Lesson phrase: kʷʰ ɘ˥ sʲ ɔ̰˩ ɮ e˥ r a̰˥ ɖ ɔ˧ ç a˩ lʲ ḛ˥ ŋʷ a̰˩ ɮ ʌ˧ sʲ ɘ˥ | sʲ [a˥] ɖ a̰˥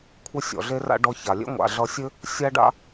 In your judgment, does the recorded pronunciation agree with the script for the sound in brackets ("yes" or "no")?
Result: yes